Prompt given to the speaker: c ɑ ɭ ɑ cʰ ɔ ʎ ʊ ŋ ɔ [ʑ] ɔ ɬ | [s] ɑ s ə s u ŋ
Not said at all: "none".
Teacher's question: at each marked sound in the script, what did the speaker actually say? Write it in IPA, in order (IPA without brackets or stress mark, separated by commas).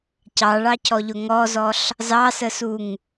z, z